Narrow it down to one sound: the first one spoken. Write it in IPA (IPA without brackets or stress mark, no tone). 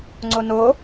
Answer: ŋ͡ǀ